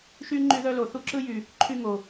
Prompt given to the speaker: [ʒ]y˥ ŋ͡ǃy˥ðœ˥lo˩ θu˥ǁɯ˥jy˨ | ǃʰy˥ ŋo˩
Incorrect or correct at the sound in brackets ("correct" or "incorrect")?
incorrect